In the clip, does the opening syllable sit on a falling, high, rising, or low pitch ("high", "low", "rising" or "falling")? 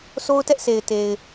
high